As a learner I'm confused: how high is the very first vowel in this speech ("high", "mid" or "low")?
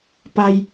low